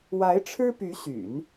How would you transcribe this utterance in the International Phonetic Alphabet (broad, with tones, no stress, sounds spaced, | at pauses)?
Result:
w a˧˥ ɪ̯ ʈ͡ʂʰ ɻ̩˥ p y˧˥ ɕ y̰˨˩˦ n